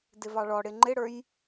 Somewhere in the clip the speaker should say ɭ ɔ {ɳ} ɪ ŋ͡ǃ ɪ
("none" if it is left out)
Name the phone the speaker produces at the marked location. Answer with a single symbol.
ɽ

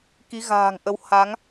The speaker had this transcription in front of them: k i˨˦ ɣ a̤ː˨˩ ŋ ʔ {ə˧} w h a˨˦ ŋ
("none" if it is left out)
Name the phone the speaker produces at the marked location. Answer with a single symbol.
ə˧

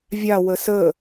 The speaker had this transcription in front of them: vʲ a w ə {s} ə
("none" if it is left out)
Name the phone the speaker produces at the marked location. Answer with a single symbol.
s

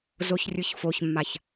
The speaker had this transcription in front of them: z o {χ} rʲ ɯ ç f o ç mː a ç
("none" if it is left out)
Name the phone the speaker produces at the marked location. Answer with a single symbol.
ç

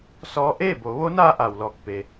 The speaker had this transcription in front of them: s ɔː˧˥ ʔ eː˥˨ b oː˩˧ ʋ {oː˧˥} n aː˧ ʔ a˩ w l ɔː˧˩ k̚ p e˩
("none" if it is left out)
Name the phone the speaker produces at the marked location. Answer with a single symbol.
o˧˥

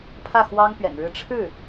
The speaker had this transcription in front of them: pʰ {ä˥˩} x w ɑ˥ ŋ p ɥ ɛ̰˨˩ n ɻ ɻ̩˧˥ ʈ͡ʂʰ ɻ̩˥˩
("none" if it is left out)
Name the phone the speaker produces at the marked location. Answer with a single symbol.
ä˥˩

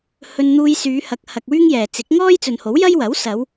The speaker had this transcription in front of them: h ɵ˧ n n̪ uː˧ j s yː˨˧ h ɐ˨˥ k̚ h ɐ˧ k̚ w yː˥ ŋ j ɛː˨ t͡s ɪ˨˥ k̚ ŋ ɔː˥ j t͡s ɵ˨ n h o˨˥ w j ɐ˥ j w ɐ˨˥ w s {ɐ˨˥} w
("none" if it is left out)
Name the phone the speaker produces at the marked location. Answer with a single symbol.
ɐ˨˧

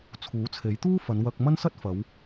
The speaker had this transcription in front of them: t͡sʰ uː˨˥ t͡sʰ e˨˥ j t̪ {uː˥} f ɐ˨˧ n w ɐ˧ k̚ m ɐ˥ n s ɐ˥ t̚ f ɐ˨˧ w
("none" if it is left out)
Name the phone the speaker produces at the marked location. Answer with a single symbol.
uː˥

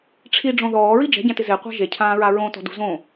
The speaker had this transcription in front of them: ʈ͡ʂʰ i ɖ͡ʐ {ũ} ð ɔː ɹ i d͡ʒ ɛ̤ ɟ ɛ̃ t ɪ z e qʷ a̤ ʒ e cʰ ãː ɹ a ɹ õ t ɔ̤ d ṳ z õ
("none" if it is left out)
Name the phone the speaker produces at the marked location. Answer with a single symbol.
õ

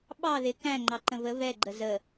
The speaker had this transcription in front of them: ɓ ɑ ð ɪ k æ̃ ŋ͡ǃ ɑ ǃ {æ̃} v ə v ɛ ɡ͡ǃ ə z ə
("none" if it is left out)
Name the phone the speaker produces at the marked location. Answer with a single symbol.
ə̃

